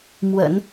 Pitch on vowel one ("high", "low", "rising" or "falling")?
low